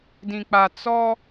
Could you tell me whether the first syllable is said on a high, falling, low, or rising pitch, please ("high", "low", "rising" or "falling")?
low